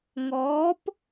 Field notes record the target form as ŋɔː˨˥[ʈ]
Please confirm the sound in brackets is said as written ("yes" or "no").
no